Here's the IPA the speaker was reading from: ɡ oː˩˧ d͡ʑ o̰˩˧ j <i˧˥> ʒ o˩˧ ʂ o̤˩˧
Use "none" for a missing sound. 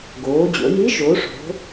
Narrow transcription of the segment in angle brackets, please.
i˧˥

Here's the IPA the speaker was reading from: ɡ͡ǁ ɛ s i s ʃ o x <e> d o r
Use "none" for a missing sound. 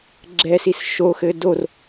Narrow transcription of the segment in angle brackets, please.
ɘ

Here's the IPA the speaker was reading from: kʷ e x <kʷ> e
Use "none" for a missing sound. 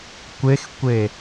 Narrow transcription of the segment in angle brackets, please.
kʷ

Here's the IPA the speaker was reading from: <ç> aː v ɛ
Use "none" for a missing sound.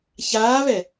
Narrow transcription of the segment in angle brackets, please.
ç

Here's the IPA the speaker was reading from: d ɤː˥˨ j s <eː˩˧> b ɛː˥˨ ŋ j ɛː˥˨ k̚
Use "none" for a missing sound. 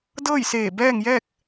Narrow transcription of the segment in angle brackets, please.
eː˧˩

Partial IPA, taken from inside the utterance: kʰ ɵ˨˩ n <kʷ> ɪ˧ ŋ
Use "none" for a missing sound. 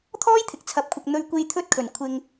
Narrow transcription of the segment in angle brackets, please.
kʷʰ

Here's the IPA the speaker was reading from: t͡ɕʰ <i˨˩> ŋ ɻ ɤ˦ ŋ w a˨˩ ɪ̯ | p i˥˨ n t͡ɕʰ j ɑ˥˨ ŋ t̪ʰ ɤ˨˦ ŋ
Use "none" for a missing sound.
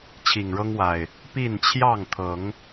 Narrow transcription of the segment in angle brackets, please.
i˨˩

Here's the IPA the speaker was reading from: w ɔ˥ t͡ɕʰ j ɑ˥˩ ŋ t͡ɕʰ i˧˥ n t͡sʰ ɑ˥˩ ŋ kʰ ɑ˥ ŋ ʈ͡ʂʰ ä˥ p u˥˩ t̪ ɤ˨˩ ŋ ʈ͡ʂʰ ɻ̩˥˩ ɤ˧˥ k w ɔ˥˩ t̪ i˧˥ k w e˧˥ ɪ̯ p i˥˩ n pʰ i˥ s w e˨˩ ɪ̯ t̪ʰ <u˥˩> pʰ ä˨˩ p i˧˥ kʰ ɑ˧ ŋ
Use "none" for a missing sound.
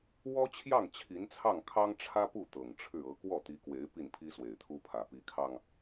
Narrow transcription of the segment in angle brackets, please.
u˥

